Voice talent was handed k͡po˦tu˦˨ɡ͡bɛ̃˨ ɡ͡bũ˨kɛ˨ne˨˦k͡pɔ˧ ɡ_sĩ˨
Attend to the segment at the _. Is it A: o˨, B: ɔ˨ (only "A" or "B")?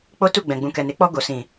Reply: A